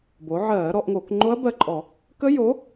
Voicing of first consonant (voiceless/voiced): voiced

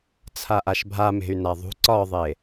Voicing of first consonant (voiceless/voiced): voiceless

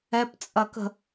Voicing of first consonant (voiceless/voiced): voiceless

